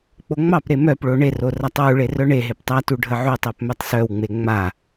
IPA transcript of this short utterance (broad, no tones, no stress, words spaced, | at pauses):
k͡poŋ͡mɑpɾe mœpɭo ɳero ratˤwuɭe rœɳeɦep tˤatu ɖʱəʕutˤɜp mœtˤsœwŋ͡me ŋ͡ma